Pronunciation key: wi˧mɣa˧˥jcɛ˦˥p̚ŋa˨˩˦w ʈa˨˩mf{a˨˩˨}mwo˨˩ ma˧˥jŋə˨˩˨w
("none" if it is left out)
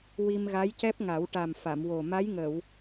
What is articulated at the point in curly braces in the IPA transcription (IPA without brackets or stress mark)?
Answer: a˨˩˨